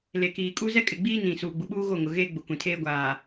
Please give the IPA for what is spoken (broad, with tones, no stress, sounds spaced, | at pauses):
l e˨ k iː˨ kʼ u˦ z ɛ˦ kʼ ɪ˨ ɡ͡b iː˦ n ĩ˨ s uː˨ ɡ͡b u˨ ɓ uː˦ ɣ o˦˨ ŋ ʊ˨ ɣ eː˦ ɡ͡b ʊ˨ kʷ ĩ˨ tʰ eː˦ ɡʷ aː˨